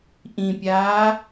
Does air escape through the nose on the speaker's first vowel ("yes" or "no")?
yes